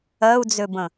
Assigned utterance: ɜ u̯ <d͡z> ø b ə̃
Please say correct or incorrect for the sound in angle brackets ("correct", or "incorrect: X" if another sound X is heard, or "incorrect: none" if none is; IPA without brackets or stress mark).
correct